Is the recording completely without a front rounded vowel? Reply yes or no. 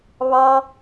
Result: yes